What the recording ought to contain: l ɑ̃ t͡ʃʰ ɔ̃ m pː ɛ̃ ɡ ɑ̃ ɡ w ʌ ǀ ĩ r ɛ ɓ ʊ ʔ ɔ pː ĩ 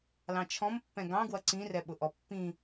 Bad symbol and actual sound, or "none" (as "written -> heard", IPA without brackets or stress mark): none